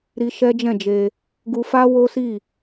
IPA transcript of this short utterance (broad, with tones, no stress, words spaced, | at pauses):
ɾi˧ ʃɛ˦d͡ʒɛ̃˦˨d͡ʒe˧ | ɡu˧fa˦wo˦si˦˨